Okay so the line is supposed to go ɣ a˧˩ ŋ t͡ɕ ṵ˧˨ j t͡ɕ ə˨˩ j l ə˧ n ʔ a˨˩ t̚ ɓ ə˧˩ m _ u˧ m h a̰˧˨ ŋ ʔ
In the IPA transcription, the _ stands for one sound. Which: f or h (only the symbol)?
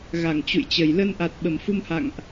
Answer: f